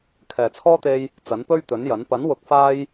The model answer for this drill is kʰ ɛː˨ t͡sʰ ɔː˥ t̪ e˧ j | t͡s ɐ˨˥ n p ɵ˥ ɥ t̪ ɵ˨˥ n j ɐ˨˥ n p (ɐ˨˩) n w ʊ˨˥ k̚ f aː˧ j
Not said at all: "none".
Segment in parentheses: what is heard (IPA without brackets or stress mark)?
ɐ˨˥